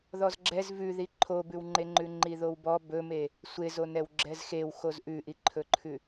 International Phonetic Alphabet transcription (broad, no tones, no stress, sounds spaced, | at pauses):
ð ɔ z ɡ͡ǁ ɛ z v ʉ ð i ǃʰ o b ʉ w ŋ͡ǃ e ŋ͡ǃ ʉ ŋ͡ǃ i ð o w b ɔ b ɵ m e | sʷ e z o n ɛ w ɡ͡ǁ ɛ z x e w x o z ʔ ʉ ʔ i ǃʰ ɵ ǃʰ ʉ